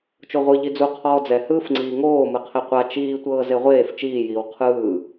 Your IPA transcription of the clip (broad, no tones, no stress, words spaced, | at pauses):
t͡ʃoʁʷɯ ʎid͡zu qʰɔːd͡zɛ hɯːfŋ͡ǀiːŋoː mɯqʰeqʷa t͡ʃiː tʷɤːzeʁʷeːf t͡ʃiːjiːw qʰɯː